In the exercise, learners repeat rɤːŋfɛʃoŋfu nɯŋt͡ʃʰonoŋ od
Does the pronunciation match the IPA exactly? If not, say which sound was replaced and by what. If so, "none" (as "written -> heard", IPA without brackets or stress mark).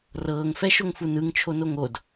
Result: none